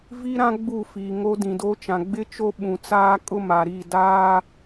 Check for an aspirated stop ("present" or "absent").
absent